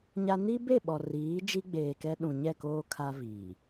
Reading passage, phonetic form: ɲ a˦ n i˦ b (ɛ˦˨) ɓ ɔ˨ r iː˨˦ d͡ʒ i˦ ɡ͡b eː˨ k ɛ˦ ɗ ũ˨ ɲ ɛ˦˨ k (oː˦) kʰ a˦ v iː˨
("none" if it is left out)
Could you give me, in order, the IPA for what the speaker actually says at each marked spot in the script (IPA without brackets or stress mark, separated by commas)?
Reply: e˦˨, oː˦